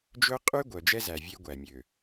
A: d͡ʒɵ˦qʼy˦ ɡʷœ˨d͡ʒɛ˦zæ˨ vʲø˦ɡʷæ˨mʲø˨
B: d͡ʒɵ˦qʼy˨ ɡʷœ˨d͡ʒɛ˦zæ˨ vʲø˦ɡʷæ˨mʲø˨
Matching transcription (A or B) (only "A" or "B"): A